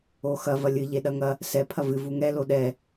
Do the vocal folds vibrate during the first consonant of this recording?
no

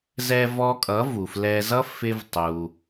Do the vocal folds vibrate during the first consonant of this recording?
yes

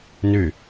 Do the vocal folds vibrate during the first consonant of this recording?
yes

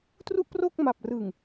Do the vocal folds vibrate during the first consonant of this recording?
no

